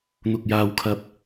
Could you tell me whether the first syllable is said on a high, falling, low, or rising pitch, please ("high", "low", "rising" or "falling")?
low